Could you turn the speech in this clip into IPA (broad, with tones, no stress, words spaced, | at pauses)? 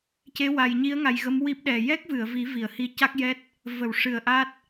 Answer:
ce˧˥wa˨˩jɲi˧˥ə̯ŋa˨˩j ɣə˧˥mwi˦˥p̚ɗɛ˨˩ jɛ˦˥k̚vɨ˨˩˨ə̯vi˨˩˦ vi˨˩˨ə̯hi˧˥ ca˦˥k̚jɛ˦˥t̚ | və˨˩˨wʂɨ˨˩˨ə̯ ʔa˦˥t̚